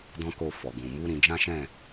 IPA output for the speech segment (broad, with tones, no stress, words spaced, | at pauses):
dɔ̃˦ko˦˨fɔ˨ɡũ˨ mu˨˦ ɾĩ˧d͡ʒã˦ʃɛ̃˦˨